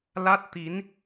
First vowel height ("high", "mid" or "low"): low